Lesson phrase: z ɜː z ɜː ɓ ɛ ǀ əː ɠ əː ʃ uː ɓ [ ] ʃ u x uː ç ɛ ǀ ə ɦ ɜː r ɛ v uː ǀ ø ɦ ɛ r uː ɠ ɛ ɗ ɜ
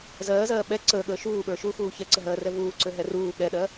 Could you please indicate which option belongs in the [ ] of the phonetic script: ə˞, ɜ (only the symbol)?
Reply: ə˞